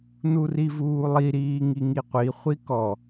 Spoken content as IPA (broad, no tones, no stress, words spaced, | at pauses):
nurivuːlˠi ɾiːŋiŋiqʷi χʷikɔ